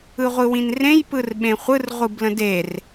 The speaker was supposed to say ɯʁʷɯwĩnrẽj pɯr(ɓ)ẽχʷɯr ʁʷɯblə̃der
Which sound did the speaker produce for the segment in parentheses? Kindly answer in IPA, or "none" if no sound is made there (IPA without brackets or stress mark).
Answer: ɓ